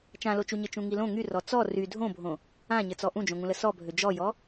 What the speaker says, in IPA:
t͡ʃ ã l o t͡ʃ u ɲ ɘ t͡ʃ ũ ŋ i l õ ŋ y r ɔ t͡s ɔ r y dʱ õ bʱ õ | ã ɲ ɘ t͡s ɔ ʔ ũ d͡ʒ õ ŋ ũ l ə s ɔ bʱ ø d͡ʒ ɔ j ɔ

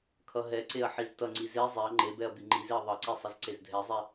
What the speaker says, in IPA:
kʰ ʌ ɦ ɛ ǀ e ɐ̯ ħ i z t ʌ ŋ͡ǀ i z e zˤ ɛ ɐ̯ ŋ͡ǃ e b ɛ ɐ̯ b i ŋ͡ǃ i z e ɐ̯ ðˤ ʌ ǀ ɛ sˤ ʌ z ǀ e z dʱ ɛ zˤ ɛ

